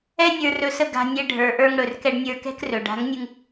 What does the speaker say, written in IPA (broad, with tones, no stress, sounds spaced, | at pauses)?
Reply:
ɛ˦ nʲ ə˞˧ r ɵ˨˦ s ə˧ ɡ a̤˧ nʲ ɛ˧ ɖʱ ə˞˨ ʔ ə˞˧ ŋ ɽ ɵ˨ r k ɛ˧ ɖ nʲ ə˞˧ k ɛ̤˦ k r ɵ˨ ɖ a̤˨˦ ŋ nʲ ɯ˧ ŋ